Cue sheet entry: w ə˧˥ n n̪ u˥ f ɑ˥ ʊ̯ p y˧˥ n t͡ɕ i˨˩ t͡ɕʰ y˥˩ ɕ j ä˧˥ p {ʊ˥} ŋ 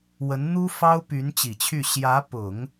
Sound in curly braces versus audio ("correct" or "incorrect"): incorrect